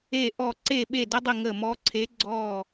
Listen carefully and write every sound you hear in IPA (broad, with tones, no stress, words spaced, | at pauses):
e˦˨ʔɔ˦˨ ǀe˦˨ɓe˦˨də˧˥dˤɪ˦˨ ŋə˦˨ mɔ˧˥ǀʰe˧˥ ɡ͡ǀɔ˦˨